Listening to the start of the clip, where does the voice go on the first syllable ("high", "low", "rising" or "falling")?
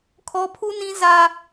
high